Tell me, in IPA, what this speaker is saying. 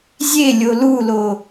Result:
zʲelʲo lulo

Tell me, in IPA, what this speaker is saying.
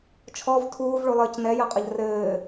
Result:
t͡ʃʰɔv tʰuːvɭulˠɘːc nɛjɐqʼɐʎ rɘː

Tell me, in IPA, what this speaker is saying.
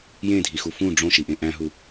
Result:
jẽdʱixu fũ ɖ͡ʐõʃiʔẽ ʔæ̃ɦu

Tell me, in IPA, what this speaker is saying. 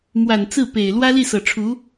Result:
mwa˨˩nt͡sɹ̩˥˩ pe˨˩ɪ̯ lwä˥li˥˩sɤ˨˩ ʈ͡ʂʰu˧˥

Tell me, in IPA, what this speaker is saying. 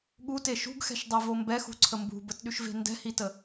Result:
ɠute ʃṳɡxɛ̤ʃdˤɛvo mbɛxṳǀʰə mbṳbətɗyʃve̤ ndɛ̤hitə

